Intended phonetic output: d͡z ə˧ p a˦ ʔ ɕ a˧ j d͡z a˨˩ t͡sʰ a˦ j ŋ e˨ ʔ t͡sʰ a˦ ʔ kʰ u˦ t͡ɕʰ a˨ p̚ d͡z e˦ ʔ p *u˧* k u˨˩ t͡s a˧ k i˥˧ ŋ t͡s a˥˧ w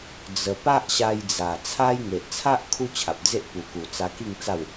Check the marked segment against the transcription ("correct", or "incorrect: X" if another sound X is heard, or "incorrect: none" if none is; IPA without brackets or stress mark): incorrect: u˨˩